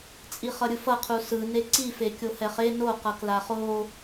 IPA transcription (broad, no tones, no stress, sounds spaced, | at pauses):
t͡sʼ i χ ʌ ɾʲ ɯ f ʌ qʰ u s ɯ n e ǀ i f e kʲ o h ɛ χ e n o q ʌ k l a χ o